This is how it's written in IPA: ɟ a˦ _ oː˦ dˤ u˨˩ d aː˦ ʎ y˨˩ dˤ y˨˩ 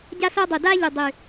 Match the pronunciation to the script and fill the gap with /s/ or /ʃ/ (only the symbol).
s